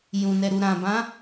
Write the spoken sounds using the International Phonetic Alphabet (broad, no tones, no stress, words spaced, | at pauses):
jũnɛɾu ɾãbã